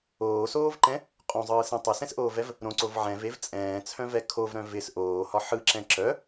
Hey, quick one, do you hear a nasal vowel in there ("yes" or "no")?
yes